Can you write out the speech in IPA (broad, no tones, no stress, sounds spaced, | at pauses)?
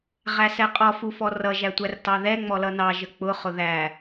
ʁ æ s ɛ qʼ ɔ f u f ɔ r ʌ ʒ æ tʷ æ r t ɑ ð ɛ ŋ͡m ɔ l ʌ n ɑ ʒ ə k͡p ʊ χ ʊ ð æ